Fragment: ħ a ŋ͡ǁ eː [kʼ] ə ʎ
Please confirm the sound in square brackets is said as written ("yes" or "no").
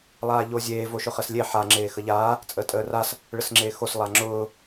no